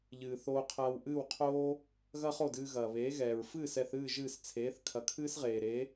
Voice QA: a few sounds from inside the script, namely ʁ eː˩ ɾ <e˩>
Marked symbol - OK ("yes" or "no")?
no